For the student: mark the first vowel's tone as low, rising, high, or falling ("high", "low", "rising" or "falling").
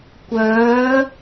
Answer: rising